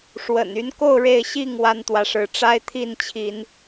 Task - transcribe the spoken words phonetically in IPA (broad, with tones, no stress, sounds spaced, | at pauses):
ʂ w ə̰˨˩ n y˨˦ n k o˥˨ ʊ̯ ɻ e˥˨ ɪ̯ ɕ i˥˨ ŋ w a˦ n t̪ w ä˨˦ ʂ ɻ̩˨˦ ʈ͡ʂ a˦ ɪ̯ t̪ʰ i˥˨ n t͡ɕʰ i˨˦ n